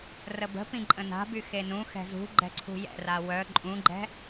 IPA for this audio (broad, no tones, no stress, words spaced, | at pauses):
rəbə̤pĩ ǃʼə̃na̤by xenũ xɛ̤zṳ ɡ͡ǃɛ̤ǀʰṳjɛ̰ra wœ ǃʼũɡ͡ǃɛ̤